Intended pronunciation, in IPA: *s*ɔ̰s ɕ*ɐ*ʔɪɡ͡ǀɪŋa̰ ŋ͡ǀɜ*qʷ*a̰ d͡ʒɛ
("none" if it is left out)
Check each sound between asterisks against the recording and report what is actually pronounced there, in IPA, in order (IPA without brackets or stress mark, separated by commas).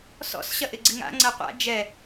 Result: s, ɐ, qʷ